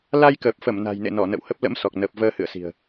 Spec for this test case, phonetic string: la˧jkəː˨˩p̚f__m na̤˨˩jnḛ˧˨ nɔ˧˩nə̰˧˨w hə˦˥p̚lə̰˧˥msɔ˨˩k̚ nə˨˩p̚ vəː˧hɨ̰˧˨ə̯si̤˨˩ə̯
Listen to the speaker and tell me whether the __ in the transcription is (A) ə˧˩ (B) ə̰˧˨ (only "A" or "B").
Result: A